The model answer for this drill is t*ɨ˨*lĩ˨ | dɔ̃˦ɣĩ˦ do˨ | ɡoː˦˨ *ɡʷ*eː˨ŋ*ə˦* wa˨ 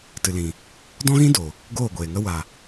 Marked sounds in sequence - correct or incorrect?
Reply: correct, correct, correct

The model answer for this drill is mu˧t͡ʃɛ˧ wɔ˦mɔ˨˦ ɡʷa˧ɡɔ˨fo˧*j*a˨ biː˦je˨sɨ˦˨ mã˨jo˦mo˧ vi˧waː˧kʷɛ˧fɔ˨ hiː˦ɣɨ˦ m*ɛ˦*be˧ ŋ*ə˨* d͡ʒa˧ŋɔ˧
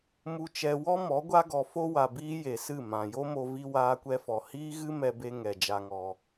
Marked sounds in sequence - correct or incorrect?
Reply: incorrect, incorrect, incorrect

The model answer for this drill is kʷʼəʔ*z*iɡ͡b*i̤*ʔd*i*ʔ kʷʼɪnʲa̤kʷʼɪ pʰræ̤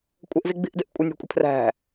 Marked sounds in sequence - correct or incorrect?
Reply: correct, correct, incorrect

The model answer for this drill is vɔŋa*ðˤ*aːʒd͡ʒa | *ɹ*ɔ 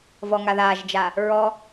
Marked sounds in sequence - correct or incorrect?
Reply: incorrect, correct

